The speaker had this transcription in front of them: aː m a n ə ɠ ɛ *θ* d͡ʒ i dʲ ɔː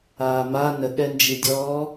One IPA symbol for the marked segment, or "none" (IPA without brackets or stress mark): n